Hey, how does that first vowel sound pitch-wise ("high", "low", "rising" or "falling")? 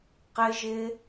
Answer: high